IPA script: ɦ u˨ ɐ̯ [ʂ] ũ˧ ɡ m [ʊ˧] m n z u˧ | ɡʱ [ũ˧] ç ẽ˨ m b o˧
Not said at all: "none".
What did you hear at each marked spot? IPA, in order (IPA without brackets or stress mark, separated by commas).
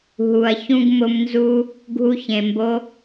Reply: ç, ʊ˧, u˧